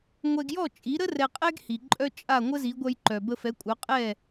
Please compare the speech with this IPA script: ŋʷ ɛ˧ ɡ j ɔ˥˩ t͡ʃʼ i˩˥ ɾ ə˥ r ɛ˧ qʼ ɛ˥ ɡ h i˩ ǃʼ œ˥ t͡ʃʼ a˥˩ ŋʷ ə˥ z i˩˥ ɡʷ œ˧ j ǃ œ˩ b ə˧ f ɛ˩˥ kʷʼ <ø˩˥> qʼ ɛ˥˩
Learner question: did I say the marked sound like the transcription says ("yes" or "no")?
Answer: no